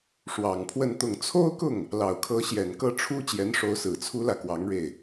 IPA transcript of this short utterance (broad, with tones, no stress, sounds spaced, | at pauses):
ʂ w ɑ˨˩ ŋ pʰ w ə˥˧ n t̪ ʊ˥˩ ŋ t͡sʰ o˥ ʊ̯ k ʊ˥˩ ŋ | l ɑ˨˩ ʊ̯ kʰ ɤ˧˥ ɕ j ɛ˨˩ n k ɤ˥˩ ʈ͡ʂʰ u˥ t͡ɕ j ɛ˧˥ n ʂ o˧˥ ʊ̯ s ɹ̩˨˩ t͡sʰ u˥ l ä˨ k w ɑ˧˥ ŋ ɻ e˥˩ ɪ̯